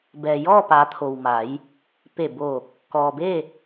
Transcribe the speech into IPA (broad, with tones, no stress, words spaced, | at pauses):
bɛː˩jɔː˥˨paː˩˧t̪ʰo˩w ma˩˧j | pe˧˩boː˧˩k̚ | kɔː˩be˥˨